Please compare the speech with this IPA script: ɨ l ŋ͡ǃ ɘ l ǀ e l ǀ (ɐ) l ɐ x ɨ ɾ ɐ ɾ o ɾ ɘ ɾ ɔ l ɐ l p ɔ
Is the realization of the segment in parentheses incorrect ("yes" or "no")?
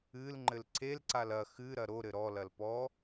yes